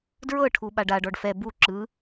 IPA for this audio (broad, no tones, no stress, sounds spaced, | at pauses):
d ɹ ɤ ʈʰ u ɓ a ɖ a ɖ ɔ ɖ f ɛ b u ǁ ɯ